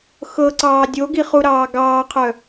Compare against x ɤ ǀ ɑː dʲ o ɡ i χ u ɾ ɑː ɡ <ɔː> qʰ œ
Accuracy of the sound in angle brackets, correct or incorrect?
incorrect